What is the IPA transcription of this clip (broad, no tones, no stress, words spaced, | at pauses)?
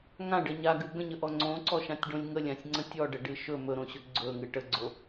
ŋãɖə ɲaɡɨ ɡə̃ɲəʔɔ ŋ͡ǀõǀɔʃãtʲɖõlʲ ŋəlʲãsʲŋ͡ǀə̃ tʲɔɖəɖɨ ʃɵ mɵɾõɕɵ ɡ͡ǀɵŋɨ ʈəɡ͡ǀo